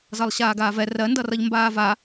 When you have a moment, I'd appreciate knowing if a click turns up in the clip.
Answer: no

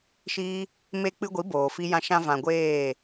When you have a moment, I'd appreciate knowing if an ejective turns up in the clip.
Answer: no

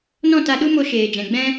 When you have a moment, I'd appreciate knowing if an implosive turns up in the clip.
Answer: yes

